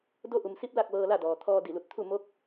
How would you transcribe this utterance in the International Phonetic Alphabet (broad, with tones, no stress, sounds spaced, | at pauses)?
d o˧˥ ʔ u˩ m s i˧˥ p̚ l a˥˨ k̚ ʋ ɤː˧ l a˥˨ d ɔː˩ t̪ʰ ɔː˧ d i˧˩ l u˧˩ t̚ t̪ʰ u˥˨ m o˧˥ k̚